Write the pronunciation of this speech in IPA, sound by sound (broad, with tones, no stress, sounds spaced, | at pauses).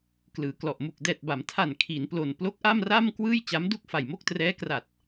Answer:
k l ɯː˩˦ k l ɔ˨˩ ʔ m u˨˩ k̚ d ɛː˨˩ t̚ b a˩˦ m tʰ a˨˩ n kʰ i˩˦ n p l o˨˩ n p l o˦˥ k̚ ʔ a˥˩ m r a˥˩ m k w ɯː˥˩ j t͡ɕ a˦˥ m d u˥˩ k̚ f a˨˩ j m o˥˩ k̚ t r ɛː˦˥ k r a˨˩ t̚